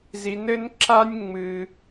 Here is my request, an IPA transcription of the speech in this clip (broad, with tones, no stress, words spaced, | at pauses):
zi˧nɘ˦n ǁa˦nʲŋ͡mɨ˧